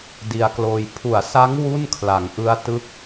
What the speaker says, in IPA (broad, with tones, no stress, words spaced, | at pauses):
di˧a̯kloː˧j pʰu˩˦a̯sa˦˥ŋ wu˥˩nkʰla˩˦ŋʔɯ˦˥a̯ tɯ˥˩k̚